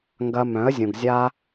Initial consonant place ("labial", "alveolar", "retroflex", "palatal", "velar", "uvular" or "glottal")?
velar